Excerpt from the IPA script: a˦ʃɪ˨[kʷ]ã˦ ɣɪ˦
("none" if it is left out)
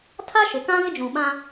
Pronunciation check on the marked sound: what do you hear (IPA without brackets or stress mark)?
k